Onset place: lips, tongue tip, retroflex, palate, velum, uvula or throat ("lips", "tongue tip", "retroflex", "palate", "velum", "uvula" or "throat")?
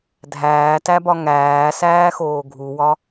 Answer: tongue tip